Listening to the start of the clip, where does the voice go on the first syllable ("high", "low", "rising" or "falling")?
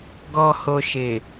low